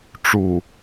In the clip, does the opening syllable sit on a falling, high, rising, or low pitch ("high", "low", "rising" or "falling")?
low